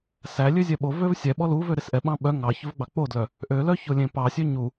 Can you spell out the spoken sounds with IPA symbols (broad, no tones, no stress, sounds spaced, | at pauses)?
s æ lʲ ø zʲ ɛ ɓ o v ø v sʲ ɛ ɓ ɔ l u v ø ɾ e s ʔ ɛ ɓ ɑ̃ ɓ œ ŋ ɑ ç ɵ v ɡ͡b ɑ k͡p o d l œ | ʔ ø l œ ç o lʲ ẽ p ɑ sʲ ø ɲ u